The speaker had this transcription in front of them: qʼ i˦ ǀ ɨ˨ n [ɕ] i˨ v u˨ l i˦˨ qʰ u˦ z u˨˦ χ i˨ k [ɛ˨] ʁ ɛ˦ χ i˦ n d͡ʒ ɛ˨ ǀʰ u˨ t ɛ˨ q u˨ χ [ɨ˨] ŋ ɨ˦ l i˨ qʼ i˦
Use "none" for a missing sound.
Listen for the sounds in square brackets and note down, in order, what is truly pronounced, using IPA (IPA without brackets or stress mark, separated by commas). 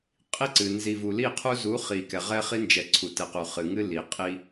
z, ɛ˨, ɨ˨